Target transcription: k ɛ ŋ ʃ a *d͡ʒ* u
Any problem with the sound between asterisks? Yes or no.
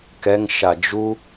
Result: no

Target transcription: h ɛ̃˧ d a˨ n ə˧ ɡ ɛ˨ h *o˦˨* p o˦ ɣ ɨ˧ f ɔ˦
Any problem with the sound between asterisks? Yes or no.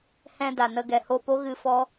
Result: yes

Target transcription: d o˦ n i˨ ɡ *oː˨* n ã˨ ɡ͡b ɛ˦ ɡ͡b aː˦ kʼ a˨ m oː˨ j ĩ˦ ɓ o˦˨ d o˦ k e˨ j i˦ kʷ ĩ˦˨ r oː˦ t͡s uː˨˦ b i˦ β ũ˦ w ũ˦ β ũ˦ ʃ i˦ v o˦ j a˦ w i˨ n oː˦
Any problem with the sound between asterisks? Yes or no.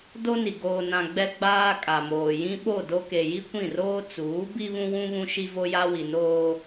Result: no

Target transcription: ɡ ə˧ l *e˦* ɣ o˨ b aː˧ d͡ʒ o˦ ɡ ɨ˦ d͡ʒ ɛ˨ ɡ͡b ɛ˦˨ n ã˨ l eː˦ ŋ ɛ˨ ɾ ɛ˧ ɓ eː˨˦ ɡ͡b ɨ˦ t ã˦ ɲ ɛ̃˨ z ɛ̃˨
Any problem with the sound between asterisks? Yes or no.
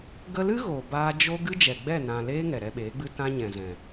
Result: yes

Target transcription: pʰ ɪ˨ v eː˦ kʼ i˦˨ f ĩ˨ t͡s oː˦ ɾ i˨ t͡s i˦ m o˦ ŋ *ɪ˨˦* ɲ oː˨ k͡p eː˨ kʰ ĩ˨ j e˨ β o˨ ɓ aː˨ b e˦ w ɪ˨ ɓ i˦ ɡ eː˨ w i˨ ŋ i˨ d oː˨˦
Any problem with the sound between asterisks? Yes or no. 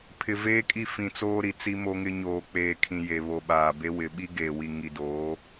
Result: yes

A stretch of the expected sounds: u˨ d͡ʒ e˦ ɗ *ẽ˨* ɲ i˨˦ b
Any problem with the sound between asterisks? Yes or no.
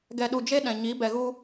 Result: yes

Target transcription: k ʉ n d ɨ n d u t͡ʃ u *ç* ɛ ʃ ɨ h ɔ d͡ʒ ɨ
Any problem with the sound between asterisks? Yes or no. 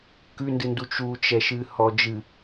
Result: yes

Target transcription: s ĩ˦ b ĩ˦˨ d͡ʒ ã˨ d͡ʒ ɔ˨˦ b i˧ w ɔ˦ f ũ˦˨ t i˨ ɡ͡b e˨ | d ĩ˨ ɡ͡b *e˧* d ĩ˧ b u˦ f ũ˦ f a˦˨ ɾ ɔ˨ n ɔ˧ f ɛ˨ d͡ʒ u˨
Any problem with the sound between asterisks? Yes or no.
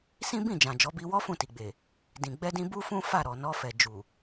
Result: yes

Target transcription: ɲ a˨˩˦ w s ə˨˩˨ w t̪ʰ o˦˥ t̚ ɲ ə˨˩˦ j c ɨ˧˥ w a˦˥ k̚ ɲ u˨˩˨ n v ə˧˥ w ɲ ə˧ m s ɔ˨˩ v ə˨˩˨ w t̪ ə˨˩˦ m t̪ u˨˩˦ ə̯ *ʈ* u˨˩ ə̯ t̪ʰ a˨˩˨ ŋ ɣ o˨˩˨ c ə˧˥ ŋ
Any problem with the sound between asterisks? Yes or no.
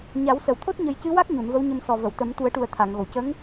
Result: no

